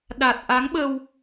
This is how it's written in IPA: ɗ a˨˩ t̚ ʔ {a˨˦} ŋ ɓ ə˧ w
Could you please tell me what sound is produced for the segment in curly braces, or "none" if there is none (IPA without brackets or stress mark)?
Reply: a˨˦